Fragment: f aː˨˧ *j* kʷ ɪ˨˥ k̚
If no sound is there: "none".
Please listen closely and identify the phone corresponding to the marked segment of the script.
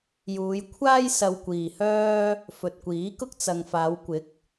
w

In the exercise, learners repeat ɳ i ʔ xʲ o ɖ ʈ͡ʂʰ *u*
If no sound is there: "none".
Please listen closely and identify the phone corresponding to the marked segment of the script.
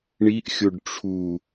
u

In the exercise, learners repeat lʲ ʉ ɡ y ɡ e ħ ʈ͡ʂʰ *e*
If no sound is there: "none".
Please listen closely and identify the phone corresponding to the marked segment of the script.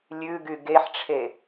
e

